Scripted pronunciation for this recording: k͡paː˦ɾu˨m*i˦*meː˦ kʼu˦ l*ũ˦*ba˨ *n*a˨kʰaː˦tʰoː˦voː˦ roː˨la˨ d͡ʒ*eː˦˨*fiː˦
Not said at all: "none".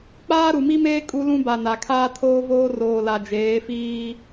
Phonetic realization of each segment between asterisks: i˦, ũ˦, n, eː˨˦

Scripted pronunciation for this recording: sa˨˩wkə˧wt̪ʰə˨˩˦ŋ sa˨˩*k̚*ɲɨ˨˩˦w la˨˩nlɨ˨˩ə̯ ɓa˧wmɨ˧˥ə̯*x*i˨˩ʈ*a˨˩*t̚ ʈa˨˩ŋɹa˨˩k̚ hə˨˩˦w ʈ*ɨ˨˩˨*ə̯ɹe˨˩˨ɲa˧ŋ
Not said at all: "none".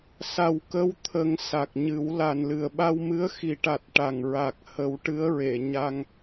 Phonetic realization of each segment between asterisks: k̚, x, a˨˩, ɨ˧˥

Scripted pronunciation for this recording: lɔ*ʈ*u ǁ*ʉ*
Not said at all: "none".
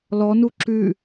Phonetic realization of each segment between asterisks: n, ʉ

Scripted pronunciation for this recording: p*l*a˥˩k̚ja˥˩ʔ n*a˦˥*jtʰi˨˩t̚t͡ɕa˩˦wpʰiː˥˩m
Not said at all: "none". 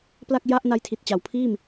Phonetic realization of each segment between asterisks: l, a˦˥

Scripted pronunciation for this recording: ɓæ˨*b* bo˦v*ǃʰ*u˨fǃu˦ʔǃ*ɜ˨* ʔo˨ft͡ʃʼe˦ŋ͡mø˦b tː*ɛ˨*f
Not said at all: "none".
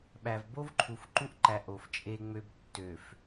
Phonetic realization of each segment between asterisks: v, ǃʰ, æ˨, ø˨

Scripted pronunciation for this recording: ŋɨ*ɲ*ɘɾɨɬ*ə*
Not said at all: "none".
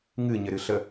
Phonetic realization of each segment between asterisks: ɲ, ə

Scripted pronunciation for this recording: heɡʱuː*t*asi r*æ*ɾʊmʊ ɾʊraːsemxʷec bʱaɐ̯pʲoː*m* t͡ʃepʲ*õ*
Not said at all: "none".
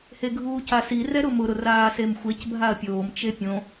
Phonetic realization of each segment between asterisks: c, ɛ, m, õ

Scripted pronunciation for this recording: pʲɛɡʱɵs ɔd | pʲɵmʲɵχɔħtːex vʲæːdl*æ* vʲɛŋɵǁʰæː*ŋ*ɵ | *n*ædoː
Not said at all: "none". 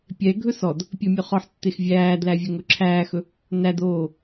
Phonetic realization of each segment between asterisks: æ, x, n

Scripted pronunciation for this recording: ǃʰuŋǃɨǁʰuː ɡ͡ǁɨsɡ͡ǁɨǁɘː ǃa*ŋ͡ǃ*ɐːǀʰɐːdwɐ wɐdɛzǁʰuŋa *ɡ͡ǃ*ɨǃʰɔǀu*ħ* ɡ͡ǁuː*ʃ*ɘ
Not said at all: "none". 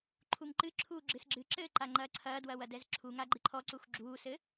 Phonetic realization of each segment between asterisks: ŋ͡ǃ, ɡ͡ǃ, x, s

